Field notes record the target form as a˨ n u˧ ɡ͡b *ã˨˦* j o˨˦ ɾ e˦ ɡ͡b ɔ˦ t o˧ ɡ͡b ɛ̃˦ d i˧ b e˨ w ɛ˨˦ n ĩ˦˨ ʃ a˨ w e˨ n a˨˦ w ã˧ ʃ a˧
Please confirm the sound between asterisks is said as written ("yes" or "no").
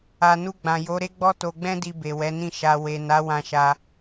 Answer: no